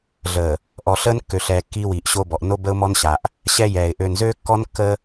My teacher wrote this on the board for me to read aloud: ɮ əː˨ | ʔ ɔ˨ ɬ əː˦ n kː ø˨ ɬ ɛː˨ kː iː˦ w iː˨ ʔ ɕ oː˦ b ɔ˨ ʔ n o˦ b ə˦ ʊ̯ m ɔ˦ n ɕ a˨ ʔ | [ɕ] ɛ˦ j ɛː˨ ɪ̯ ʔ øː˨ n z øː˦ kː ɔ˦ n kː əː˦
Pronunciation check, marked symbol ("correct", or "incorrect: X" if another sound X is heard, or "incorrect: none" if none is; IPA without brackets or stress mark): correct